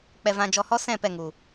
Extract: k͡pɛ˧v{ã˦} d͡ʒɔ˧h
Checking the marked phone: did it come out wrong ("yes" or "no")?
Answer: yes